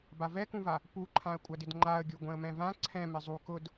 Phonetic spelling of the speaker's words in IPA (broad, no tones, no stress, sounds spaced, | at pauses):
b a v ɛ k ũ v a | p u ǃʰ ã ə̯ kʷʼ a d ɪ d ŋ͡ǃ a ə̯ ɡʲ o ɡʷ ɛ̃ ə̯ m ɛ̃ v ã ǀʰ ɛ̃ m ɪ zˤ u k ʊ d